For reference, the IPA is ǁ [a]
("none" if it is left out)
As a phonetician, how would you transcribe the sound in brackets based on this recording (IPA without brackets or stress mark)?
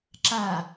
a